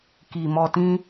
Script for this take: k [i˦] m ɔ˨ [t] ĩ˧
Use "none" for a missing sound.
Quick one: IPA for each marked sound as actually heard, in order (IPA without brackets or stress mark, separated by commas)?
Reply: i˨, t